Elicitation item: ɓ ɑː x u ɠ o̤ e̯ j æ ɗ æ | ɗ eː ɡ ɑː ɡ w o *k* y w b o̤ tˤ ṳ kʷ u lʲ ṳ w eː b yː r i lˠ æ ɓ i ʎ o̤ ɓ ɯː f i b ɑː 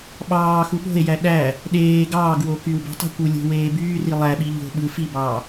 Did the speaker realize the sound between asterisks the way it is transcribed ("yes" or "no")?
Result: yes